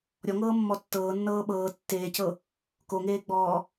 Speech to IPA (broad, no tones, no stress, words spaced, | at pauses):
ɾʲɔŋɤːmːɔ tːɤːnːɤː ɓɤː tːeːcɤ | koŋeːɡ͡bɔː